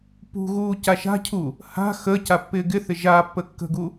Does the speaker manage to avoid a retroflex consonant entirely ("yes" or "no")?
yes